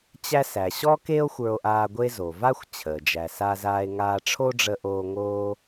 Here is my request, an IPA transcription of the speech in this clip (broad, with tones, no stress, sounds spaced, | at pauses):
t͡ɕ æ˥ s æ˩ ɕ ɔ˥ k e˥ o̯ xʷ ə˞˧ o̯ ʔ aː˧ ɡʷ e˥ z o˩ v a˥ xʷ t͡ɕʰ əː˩ d͡ʒ æ˩ s a˧ z aː˧ e̯ ŋ aː˧ ʈ͡ʂʰ o˥ ɖ͡ʐ ə˧ ʔ oː˧ ŋ oː˥